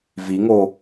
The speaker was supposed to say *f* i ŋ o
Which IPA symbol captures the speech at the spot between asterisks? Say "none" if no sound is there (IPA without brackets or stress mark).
v